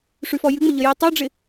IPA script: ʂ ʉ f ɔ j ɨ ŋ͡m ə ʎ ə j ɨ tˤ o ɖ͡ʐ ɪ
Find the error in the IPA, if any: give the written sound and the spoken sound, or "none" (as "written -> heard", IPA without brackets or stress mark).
none